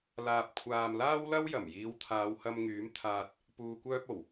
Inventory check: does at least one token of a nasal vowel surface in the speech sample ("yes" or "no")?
no